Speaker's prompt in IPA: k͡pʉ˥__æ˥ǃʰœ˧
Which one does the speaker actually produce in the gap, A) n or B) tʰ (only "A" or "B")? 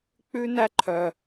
A